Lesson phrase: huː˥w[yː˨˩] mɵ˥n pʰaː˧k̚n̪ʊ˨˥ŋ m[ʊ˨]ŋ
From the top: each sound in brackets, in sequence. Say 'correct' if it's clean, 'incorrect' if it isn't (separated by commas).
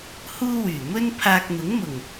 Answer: correct, incorrect